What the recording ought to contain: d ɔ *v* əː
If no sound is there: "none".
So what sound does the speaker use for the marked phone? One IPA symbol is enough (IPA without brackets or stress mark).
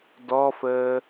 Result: f